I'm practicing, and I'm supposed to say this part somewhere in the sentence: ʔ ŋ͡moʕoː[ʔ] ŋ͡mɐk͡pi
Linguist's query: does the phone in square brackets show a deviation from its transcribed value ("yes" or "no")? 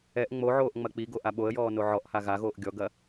no